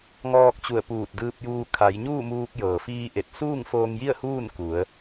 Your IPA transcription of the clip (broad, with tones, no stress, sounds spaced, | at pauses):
ŋ ɔː˧ k̚ t͡ɕ u˧˩ ə̯ p uː˧˩ t̚ d ɯː˧ p̚ j uː˧ kʰ a˩˧ j ɲ uː˥˨ m uː˧ k̚ j ɤː˩ f iː˧ ʔ e˧˩ t̚ s uː˥˨ ŋ f oː˧ ŋ j i˥˨ ə̯ h uː˥˨ n k u˩˧ ə̯